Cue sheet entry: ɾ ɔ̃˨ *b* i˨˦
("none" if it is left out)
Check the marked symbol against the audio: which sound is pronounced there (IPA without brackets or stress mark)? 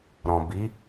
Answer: b